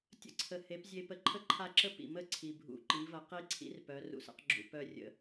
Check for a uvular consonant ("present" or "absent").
present